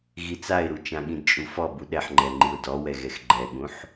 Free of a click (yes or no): no